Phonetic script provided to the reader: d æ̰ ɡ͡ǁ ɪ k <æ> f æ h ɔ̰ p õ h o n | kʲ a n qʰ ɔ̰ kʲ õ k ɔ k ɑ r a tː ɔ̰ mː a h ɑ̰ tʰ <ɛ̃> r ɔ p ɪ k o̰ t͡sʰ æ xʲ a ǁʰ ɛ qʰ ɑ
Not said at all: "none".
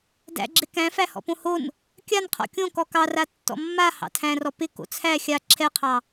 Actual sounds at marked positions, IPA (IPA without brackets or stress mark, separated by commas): æ̃, æ̃